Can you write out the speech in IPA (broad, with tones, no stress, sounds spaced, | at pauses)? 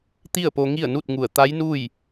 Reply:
t̪ i˥˨ ə̯ p o˧ ŋ i˥˨ ə̯ n u˥˨ t̚ ŋ u˧˩ ə̯ t̪ a˧˥ j n u˥˨ j